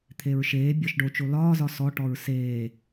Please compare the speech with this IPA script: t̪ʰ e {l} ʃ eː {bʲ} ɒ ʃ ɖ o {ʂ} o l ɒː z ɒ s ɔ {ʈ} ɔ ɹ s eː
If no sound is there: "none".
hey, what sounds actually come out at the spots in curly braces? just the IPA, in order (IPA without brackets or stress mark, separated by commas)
ɹ, bʲ, t͡ʃ, ʈ